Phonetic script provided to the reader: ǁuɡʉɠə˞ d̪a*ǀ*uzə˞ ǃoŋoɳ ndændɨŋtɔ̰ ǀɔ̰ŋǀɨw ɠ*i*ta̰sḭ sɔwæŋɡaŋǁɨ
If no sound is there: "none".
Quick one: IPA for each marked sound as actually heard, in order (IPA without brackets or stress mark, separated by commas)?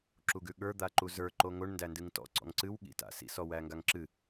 ǃ, ḭ